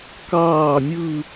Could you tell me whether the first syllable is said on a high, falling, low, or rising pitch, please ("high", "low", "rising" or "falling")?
falling